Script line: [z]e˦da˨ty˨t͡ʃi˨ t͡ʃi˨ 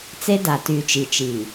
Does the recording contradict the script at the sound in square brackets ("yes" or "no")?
yes